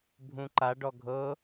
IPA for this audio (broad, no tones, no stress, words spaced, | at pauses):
bʱũǃa ɖɔɡʱɤ